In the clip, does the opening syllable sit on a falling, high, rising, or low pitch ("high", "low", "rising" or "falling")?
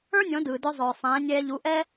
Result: high